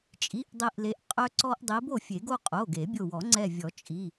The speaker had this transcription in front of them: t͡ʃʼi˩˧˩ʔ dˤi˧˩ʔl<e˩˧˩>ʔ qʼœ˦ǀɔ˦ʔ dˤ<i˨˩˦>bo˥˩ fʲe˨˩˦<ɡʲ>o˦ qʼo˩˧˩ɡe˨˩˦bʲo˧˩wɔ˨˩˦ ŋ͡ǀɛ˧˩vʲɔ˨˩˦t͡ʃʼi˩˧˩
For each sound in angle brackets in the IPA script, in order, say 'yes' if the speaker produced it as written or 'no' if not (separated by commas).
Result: no, no, no